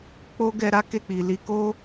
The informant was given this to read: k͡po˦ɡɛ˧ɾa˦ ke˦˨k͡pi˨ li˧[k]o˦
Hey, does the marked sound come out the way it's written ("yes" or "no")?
yes